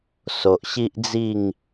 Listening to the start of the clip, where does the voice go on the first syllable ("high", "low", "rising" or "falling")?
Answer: low